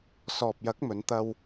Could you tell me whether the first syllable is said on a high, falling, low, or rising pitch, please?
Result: low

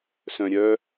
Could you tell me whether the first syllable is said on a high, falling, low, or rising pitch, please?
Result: low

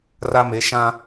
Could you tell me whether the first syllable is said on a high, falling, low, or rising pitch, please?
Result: high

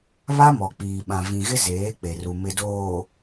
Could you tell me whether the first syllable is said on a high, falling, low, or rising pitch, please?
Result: high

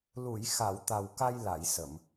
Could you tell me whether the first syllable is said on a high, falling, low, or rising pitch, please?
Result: low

